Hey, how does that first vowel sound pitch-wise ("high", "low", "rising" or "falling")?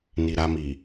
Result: low